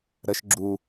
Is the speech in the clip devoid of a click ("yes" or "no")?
no